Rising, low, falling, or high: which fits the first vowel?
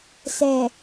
low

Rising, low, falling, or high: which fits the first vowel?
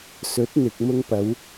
rising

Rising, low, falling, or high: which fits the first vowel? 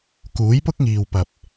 rising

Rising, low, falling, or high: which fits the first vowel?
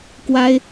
high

